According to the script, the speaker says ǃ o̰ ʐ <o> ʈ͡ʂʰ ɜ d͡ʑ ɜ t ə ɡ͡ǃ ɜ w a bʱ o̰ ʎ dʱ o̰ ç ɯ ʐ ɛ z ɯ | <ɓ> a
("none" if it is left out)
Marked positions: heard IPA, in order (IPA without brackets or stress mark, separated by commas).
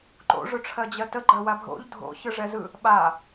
ɵ, ɓ